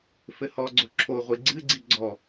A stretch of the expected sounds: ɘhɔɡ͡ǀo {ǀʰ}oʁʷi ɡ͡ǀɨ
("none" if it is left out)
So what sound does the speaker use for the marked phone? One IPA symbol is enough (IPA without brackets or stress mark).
ǁʰ